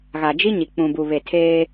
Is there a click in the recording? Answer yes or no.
no